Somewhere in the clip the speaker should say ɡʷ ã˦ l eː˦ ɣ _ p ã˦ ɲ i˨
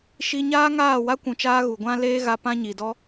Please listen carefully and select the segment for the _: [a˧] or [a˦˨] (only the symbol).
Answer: a˧